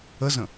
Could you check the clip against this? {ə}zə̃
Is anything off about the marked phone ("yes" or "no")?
no